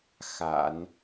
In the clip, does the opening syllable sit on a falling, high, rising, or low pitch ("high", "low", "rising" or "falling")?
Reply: low